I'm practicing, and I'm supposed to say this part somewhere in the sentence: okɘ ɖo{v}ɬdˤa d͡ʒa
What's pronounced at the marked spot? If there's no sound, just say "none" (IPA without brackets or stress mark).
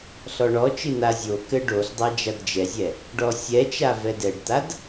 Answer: none